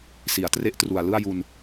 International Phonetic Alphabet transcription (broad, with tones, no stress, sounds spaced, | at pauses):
s i˩˦ a̯ t r e˦˥ ʔ t r u˨˩ a̯ l ɯ˥˩ a̯ j u˧ n